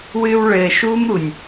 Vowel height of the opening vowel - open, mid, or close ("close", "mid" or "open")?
close